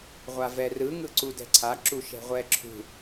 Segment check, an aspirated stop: present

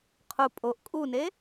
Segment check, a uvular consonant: present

